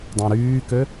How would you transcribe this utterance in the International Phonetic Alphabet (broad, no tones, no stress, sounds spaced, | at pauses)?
dˤ õ ɾ yː k ø